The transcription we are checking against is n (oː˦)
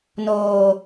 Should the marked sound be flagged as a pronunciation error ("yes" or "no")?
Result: yes